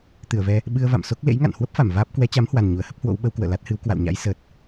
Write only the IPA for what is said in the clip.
t̪ ɨ˧˩ ə̯ v ɛ˧ | ɓ ɨ˧ ə̯ v a̰˧˨ m s o˦˥ k̚ l ḛ˧˥ j ŋ a̰˧˨ n h w ə˦˥ p̚ f a˧˩ m v aː˦˥ p̚ k w ɛ˨˦ t͡ɕ a˨˦ m h w a˨˩ n ɲ u˧˩ ə̯ h ə˦˥ p̚ h w o̰˧˥ w ɓ ə˨˦ w k w ə̰ː˧˨ l a˦˥ t̚ h ɨ˨˦ w k w a̰˧˨ w ɲ a̰˧˥ j s əː˨˩ t̚

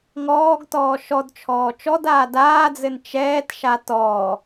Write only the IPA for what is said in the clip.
ŋ ɔː ɡ t ɔː ʃ ɔ d t͡ʃʰ ɔː t͡ʃ ɔ d aː d aː d͡z ɘ n t͡ʃ ɛː t ʃ a t ɔ

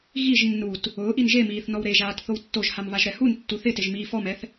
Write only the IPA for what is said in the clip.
ɣ i ʒ nː u t | ʊː ʔ i n ʒ e m iː θ n ɔ w ɾ e ʒ aː t θ o w tː o ʒ h a m β a ʒ ɾ ɛ h u n tː u θ ɪ t ɪ ʒ m iː f ɔ m ɛ θ

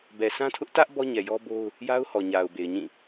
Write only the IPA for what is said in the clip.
b ɛ˨ s ã˦ tʰ ʊ˦ ʔ t ä˦ ʔ b ɔ˦ ɲ ɛ˨ j ɔ˦ b o˦ ʊ̯ | j a˦ ʊ̯ h ɔ˨ ɲ a˨ ʊ̯ b e˨ ɪ̯ ɲ ĩ˦˨

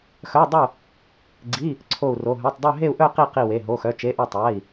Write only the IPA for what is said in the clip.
x œ˧˥˧ dˤ ʊ˥˧ | ɡ͡ǀ i˧˥˧ | ǀʰ o˥˧ u̯ r o˧˥˧ ɦ œ˧˥˧ tˤ dˤ œ˥˧ ɦ e˥˧ u̯ ʔ œ˥˧ q i˥˧ q i˥˧ w e˧˥˧ ɦ o˧˥˧ x œ˧˥˧ t͡ʃ e˧˥˧ ʔ o˥˧ tˤ a˧˥˧ i̯

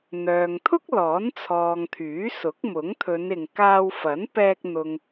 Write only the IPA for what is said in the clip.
n̪ œː˨ ŋ t̪ʰ ʊ˥ k̚ l ɔː˨˥ n t͡sʰ ɔː˨ ŋ t̪ʰ yː˨˥ s ʊ˨˥ k̚ m ʊ˨˥ ŋ t̪ʰ ɵ˨˧ n ɪ˨ ŋ k aː˧ w f ɐ˨˥ n p ɛː˧ k̚ n̪ ʊ˨ ŋ

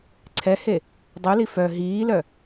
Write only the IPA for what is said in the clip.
ǀʰ ɛ h e | dˤ u l i f œ ɦ iː l œ

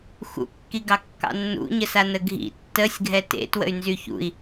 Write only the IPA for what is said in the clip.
x ṵ kː i ɡ ɑ kː ɑ̰ nː ṵ ɲ ə s a n ə ɡʱ ḭ tː ə sʲ ɡʱ ɛ t ḛ t w ə̰ y̯ n z y ç ṵ i̯

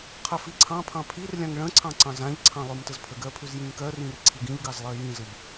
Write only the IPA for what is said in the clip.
qʰ ɜ f i ǀʰ ɑ̃ pʰ ɑ̃ pʰ i r lʲ ã ŋ ɭ ə̃ ǀʰ ɑ̃ ǀ ɑ̃ z ã ʎ ǀʰ ɑ̃ lˠ ʉ m t ə z pʰ ə ɡ ɜ pʰ ʉ z j ĩ ŋ k ɜ r ĩ r ǀʰ i ɡ ĩ ʎ ɡ ɑ z lˠ ɜ j ĩ z ə ʎ

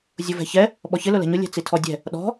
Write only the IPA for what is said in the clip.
zʲ ʊ v ɛ̤ ç ɛ | ɓ ɔ ç ɪ l ʊ l ɛ̤ ɲ ʊ lʲ ɛ̤ t͡s i tʰ ɔ dʲ ɛ̤ | ɗ ɔ̤

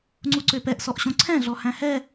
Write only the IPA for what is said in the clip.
ŋ͡ǀ u ǀ ø p ɛ ʔ s ɔ ʔ ɕ õ ǀʰ ɛ̃ ɮ ɔ h æ̃ h ɛ

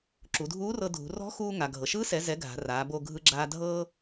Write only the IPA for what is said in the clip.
ǁ u˩˧ dʱ uː˧˥ r ɤ˧ dʱ ṳ˩˧ r ɔ̤˧˥ x uː˧ ŋ a˩ ɡʱ ɤ˩ ʃ ɯː˧˥ s ɛ˩˧ z ɛ˩˧ ɡʱ a̤˩˧ r aː˩˧ b o˧ ɡʱ ɯ˧ ɡ͡ǁ aː˧ dʱ ɤː˧

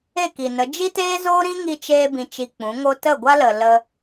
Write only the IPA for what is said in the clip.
e˦˨ k i˨ n ə˨˦ d͡ʒ i˦ t eː˦ z oː˦ ɾ ĩ˦ ŋ i˧ t͡ʃ eː˧ b ĩ˧ t͡ʃ i˧ k͡p ũ˨˦ ŋ o˦ t ə˦˨ ɡʷ a˦ l ə˨ l ə˧

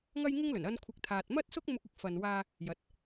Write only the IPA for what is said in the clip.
ŋ ɐ˥ j ŋ ɪ˥ ŋ l ɵ˨˩ n ɐ˧ n kʷʰ ɪ˨˥ k̚ t̪ʰ aː˨ t̚ m ɐ˥ t̚ s ʊ˥ k̚ m ʊ˧ k̚ ɪ˨˥ k̚ f ɐ˨ n w aː˧ | j ɐ˨˥ t̚

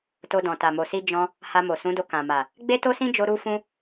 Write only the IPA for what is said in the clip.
t o˧ d ɔ̃˨ t a˨ m o˨ s i˧ d͡ʒ ɔ̃˦ | h a˧ m o˨ s ũ˨˦ d o˧ k ã˨ m a˨ | ɡ͡b e˦ t o˦ s ĩ˦ d͡ʒ o˧ ɾ u˦ f ũ˦

